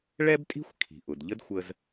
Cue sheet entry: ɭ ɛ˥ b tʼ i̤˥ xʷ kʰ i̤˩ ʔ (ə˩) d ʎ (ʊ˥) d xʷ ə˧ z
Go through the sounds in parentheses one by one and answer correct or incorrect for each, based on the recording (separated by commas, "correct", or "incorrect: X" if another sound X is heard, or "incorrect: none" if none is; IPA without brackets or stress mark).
incorrect: ʊ˩, incorrect: ə˥